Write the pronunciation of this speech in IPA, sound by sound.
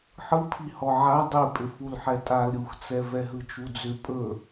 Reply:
ħ ɯ pʰ i h ɔ ʕ a dˤ i pʼ ʏ f u l ħ ɛ tʼ a l ɾʲ u x t͡s ɛ v ɛ ɦ ɯ t͡ʃ u d͡z ʏ pʼ ɵ

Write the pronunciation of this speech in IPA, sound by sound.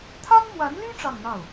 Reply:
t̪ʰ a˥ n m w a˧˥ n l y˥ ʈ͡ʂ ɑ˥˧ ŋ n̪ ɑ˥˩ ʊ̯

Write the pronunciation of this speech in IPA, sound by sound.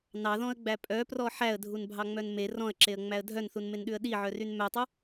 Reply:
n ɑ ð ɔ̃ ə̯ ɡ͡b æ pʼ œ p r ɔ ħ æ ə̯ dʱ u n bʱ ɑ ŋ͡m œ n m e r ɔ̃ ə̯ ǁ e ə̯ ŋ͡m æ ə̯ dʱ œ n θ u n m e n ɗ ʉ ə̯ ɗ i ʕ œ r y n m œ tˤ u

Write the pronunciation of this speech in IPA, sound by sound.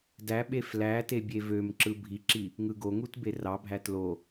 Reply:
d æ ɓ e f l æ t e bʲ e v ø m ǁ ɯ bʱ i ǁ i | ŋ ɯ ɡ o ŋ u t b e r ɑ bʱ æ t l o

